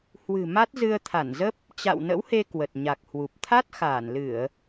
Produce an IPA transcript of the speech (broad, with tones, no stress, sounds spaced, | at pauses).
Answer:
h w ɨ̤˨˩ m a˦˥ t̚ z ɨ˧ ə̯ t̪ʰ a˧˩ n z ə˦˥ p̚ | t͡ɕ a̰˧˨ w n ə̰˧˥ w h e˧ k w ə˨˩ t̚ ɲ a˨˩ k̚ h w u˨˩ p̚ t̪ʰ a˦˥ t̚ x aː˧˩ n l ɨ˧˩˨ ə̯